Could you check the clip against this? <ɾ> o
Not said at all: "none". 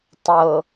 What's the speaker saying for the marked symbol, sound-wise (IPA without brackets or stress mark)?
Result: tˤ